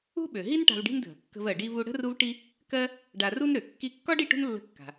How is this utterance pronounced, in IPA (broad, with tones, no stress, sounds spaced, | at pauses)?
ṳ˥ ɓ ø˩ ɦ i˥ n ʈ a̤˧ v ɖ i̤˥ n dʱ ə̤˩ kː ə̤˧ v ɜ˩ ɖ i˧ v u˧ ɽ ə̤˥ r u˥ v ʈ i˥ | k ɜ˥ | ɖ a˧ r u˥ n ɾ ø˩ kː i˧ kː ɒ˥ ɖ i˧ ʈ ṳ˥ n lː ə̤˧ kː a̤˩